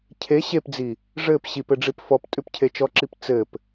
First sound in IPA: cʰ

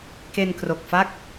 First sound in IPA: k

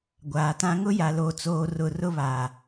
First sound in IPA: ɡʷ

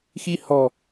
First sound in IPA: x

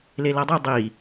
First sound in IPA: l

